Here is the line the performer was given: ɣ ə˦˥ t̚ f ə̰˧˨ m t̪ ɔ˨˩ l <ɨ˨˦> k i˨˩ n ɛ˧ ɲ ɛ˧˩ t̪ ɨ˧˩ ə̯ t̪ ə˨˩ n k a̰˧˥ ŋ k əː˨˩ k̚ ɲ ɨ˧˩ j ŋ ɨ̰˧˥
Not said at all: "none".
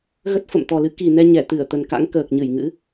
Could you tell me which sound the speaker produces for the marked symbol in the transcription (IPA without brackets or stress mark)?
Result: ɨ˨˦